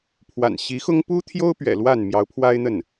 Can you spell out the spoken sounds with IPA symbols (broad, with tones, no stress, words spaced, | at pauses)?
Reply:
pʰwa̰˨˩nɕi˧˥xʊ˥ŋ pu˥t̪ʰjo˥ʊ̯pɥɛ̰˨˩ lwa˥˩n mjɑ˧˥ʊ̯pʰwa˥ɪ̯n̪ə˥˩n